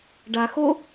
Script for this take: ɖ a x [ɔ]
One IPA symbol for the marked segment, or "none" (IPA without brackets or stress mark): o